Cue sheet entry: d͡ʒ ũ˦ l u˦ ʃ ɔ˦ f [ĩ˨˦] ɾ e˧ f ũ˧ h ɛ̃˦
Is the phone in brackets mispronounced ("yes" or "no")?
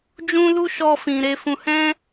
yes